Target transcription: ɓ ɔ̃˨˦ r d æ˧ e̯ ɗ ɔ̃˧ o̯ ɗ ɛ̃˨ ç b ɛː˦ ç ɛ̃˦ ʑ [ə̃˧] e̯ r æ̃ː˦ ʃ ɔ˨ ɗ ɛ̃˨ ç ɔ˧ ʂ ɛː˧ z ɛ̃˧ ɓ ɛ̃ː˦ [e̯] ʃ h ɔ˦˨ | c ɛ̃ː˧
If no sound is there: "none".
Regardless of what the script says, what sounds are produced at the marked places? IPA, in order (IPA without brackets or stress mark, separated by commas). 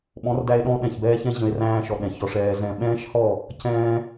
ə̃˧, none